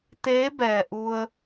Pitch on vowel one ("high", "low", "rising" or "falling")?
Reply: rising